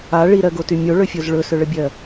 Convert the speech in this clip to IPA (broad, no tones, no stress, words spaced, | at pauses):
a ɭiɾɜɡoty mʲoɭɵfʲoz ɭɵsɵɭəbʲɜ